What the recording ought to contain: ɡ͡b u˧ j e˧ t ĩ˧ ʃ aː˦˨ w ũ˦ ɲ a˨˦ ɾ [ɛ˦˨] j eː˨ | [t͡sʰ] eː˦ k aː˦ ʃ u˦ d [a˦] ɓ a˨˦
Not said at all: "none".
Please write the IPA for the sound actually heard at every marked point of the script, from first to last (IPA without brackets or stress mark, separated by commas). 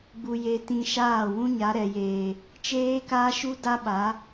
ɛ˨, t͡ʃ, a˦